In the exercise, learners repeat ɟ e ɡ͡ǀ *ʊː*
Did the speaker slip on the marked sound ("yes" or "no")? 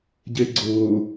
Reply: no